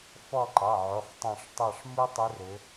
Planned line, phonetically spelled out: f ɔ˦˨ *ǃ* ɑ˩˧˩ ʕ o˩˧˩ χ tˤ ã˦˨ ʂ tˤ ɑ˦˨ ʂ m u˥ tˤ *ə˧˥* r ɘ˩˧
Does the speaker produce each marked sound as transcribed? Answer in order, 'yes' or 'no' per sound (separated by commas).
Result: yes, no